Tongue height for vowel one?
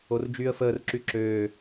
mid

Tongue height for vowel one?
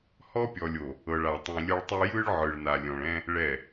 mid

